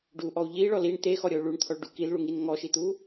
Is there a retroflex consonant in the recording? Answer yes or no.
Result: yes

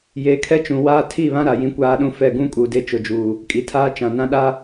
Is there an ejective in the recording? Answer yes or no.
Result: yes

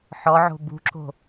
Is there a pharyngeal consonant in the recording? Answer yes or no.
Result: yes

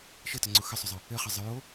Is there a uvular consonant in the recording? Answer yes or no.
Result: yes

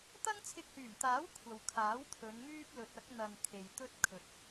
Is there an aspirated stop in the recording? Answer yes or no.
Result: yes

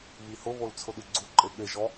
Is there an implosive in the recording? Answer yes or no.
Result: yes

